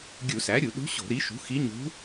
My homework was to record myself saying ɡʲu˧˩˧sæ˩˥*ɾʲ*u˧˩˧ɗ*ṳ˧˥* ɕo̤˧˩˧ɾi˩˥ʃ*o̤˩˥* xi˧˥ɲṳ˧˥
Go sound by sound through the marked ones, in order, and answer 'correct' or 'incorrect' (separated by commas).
correct, correct, incorrect